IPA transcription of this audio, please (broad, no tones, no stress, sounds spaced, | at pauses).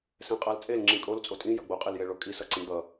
s ɛ̃ qʼ a l t͡sʼ e l ŋ͡ǁ ĩ kʼ o l t͡sʼ o tʼ ĩ j ʌ ɡ͡b o qʼ e l j e ɭ o kʼ i s ʌ ǀ ĩ ɡ͡b ʌ